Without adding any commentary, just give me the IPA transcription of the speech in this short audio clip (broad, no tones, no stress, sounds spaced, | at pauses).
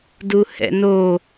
d u h ɛ̰ n o